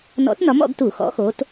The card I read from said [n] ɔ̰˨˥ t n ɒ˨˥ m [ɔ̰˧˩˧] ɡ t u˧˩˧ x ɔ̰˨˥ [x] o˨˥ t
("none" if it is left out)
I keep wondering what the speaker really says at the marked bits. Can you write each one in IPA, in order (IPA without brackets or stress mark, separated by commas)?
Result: n, ɔ̰˧˩˧, x